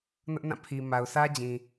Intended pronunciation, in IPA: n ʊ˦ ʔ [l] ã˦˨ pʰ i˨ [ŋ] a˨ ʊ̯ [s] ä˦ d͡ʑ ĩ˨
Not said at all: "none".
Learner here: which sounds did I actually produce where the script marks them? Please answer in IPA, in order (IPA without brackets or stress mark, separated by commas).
n, m, s